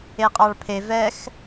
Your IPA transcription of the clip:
e qʼ ɑ ɭ pʰ e v ɛ x

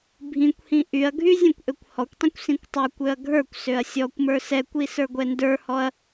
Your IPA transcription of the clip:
bʱ ĩ kʷ h ĩ ʔ y ɐ̯ ɡʱ y zʲ ɛ̃ kʷ ʔ ø kʷ h ɔ kʷ tˤ ĩ kʷ s ĩ kʷ tˤ ə˞ kʷ ø ɐ̯ ɡʱ ə˞ kʷ s ø ɐ̯ sʲ ɔ kʷ m ə˞ s ɛ kʷ i s ə˞ ɡʷ ɛ n d ə˞ h ɔ ɐ̯

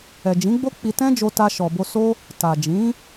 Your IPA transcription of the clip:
ɛ˨ d͡ʒ ĩ˨˦ ɡ͡b o˦ k͡p i˧ t ɛ̃˦ d͡ʒ o˧ t a˧ ʃ ɔ˨ b o˧ s o˦ | t a˨ d͡ʒ ĩ˨˦

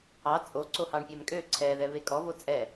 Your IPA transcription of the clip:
ɑ t͡sʼ o ǀ o h ɑ ɳ pʲ ɛ m kʼ ø ǀʰ ɛ ð ɛ β e kʼ ɔ v o t͡sʼ ɛ

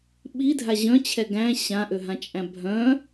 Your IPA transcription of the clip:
ɓ i dʱ a ʑ œ̃ t͡ɕʰ ɛ ɡ æ̃ ɕ ã ʔ ø ɦ ã t͡ʃʼ æ̃ bʱ œ̃

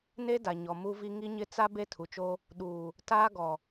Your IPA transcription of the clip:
n e˦ d a˨ ɲ ɔ˨ m u˦ v i˦ ŋ i˦ ɲ ɪ˦ t͡s a˦ b e˦ tʰ u˨ t͡ʃ o˦ | ɗ uː˨ | t aː˦ ɡ ɔ˨

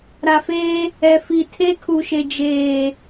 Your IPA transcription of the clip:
ɾ a˨ f eː˦ | ɛ˨ f i˨ tʰ e˦ kʰ u˨ ʃ e˨ d͡ʒ eː˨

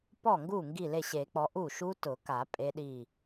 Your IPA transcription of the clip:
p ɔ˥˩ ŋ ɡ u˥˩ ŋ ɡ i˥˩ l e˥˩ ɕ e˨˩˦ k͡p ɔ˨˦ ʔ u˥˩ ʃ u˦˥ t ʊ˨˩˦ k a˨˩˦ pʼ e˦˥ ɗ i˥˩

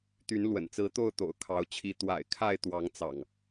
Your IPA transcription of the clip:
t̪ y˨˦ n l w ə̰˨˩ n t͡s ɹ̩˨˦ t̪ o˥˨ ʊ̯ t̪ o̰˨˩ ʊ̯ kʰ ɑ˨˦ ʊ̯ t͡ɕʰ i˨˦ t̪ w a̰˨˩ ɪ̯ kʰ a˥˨ ɪ̯ t̪ w ɑ˨˦ ŋ t͡s ɑ̰˨˩ ŋ

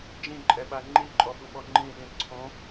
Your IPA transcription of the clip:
d͡ʒ ĩ ǃʼ ɛ ɓ a ŋ͡ǃ i ǃʼ ɔ ɓ u ɓ ɔ ŋ͡ǃ ĩ ɗ ĩ ǀʰ õ

